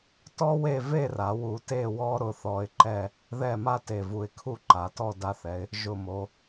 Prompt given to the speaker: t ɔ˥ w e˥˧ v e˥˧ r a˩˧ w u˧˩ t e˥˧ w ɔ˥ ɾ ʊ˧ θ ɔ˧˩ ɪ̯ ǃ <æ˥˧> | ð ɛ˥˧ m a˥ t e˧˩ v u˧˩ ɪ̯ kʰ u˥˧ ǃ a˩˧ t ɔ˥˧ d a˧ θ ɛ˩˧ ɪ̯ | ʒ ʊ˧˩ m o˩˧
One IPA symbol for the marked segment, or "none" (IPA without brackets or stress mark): ɛ˥˧